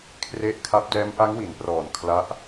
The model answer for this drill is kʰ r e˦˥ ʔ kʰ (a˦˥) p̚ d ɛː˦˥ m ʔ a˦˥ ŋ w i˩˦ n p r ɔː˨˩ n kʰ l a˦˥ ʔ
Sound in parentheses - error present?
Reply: no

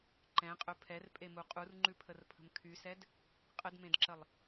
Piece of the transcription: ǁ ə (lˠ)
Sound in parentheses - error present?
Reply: no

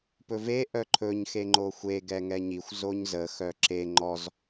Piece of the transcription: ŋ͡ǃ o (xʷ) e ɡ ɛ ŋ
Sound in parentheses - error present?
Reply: no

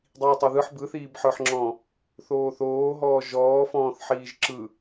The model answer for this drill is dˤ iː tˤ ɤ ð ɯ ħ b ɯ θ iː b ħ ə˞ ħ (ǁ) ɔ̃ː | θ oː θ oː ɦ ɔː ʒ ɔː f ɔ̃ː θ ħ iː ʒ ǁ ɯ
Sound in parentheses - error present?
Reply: yes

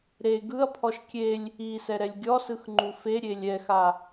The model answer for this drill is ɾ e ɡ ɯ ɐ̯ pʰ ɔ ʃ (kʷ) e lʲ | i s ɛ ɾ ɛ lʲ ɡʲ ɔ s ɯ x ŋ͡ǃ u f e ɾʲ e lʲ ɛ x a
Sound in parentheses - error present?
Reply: yes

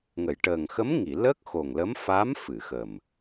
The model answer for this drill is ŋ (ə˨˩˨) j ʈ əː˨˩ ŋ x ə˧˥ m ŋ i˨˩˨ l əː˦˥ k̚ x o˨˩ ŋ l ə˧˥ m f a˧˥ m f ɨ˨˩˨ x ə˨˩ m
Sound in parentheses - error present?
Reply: no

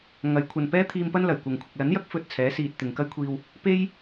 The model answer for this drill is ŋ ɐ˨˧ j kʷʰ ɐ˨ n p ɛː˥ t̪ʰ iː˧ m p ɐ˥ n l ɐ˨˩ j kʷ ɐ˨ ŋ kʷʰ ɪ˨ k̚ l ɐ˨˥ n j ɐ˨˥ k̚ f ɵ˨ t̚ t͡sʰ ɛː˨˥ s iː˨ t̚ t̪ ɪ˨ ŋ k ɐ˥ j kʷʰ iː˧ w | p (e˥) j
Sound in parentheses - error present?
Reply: no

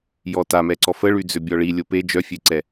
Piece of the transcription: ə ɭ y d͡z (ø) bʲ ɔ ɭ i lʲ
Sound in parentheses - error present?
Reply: no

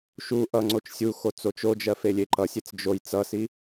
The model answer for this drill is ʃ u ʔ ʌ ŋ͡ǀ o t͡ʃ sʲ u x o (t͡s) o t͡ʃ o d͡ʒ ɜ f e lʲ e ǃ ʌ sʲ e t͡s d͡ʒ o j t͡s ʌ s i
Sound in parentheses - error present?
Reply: no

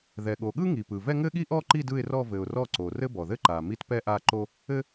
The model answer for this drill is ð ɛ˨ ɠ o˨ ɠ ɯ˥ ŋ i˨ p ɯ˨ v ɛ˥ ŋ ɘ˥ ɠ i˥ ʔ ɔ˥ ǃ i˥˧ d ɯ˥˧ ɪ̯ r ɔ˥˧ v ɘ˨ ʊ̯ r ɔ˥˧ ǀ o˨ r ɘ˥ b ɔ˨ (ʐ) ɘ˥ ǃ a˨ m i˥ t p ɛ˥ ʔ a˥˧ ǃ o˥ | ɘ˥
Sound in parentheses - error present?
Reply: yes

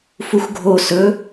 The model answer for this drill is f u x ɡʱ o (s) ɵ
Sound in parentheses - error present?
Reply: no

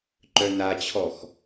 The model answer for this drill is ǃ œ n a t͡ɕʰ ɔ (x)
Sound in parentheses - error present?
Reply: no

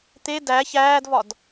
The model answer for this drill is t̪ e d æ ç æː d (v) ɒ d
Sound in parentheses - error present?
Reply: no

